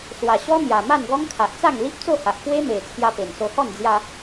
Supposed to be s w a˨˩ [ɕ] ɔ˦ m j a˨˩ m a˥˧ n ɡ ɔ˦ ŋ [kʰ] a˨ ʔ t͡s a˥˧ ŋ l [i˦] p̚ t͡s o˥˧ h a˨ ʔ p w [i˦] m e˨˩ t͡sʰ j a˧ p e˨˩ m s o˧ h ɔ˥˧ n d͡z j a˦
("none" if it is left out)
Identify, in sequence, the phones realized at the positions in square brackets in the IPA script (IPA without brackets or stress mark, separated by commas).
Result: ɕ, kʰ, i˦, e˦